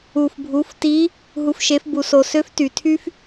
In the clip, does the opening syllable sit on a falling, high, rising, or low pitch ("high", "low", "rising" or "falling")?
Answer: low